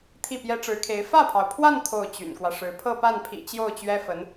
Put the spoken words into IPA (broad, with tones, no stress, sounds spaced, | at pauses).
t̪ʰ i˥˩ p j ɛ˥ ʈ͡ʂ ɻ̩˧˥ kʰ e˧˥ ɪ̯ f ä˥˩ pʰ ɑ˩ ʊ̯ pʰ w a˥˧ n t̪ʰ o˥˩ ʊ̯ t͡ɕ y̰˨˩ n k w ä˦ ʂ ɻ̩˧˥ pʰ ɤ˥˧ p a˥˩ n pʰ ḭ˨˩ t͡ɕ j o˥˩ ʊ̯ t͡ɕ ɥ ɛ˥ f ə˧˥ n